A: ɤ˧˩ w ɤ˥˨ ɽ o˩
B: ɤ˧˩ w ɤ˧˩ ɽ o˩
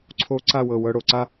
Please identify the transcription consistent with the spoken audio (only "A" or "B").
B